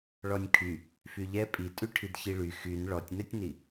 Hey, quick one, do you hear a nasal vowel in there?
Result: no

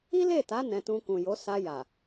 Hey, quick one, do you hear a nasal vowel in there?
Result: yes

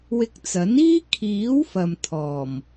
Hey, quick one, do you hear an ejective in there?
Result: no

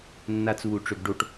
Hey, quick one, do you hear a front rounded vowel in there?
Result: yes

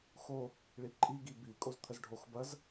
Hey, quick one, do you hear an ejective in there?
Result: yes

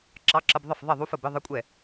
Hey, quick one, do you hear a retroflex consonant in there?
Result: no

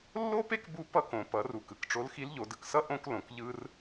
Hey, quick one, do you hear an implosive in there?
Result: no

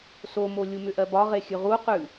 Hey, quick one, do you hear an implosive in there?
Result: no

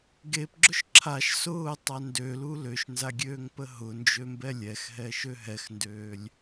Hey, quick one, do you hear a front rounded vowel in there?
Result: yes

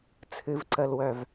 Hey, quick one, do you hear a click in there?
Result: yes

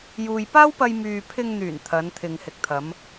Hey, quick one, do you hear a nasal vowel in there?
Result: no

